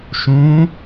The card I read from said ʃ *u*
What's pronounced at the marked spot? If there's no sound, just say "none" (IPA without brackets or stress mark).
ũ